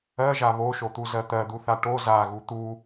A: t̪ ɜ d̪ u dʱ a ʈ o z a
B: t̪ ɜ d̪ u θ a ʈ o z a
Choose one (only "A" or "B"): B